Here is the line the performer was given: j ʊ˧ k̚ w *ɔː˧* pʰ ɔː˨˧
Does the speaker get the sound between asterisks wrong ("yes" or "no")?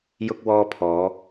no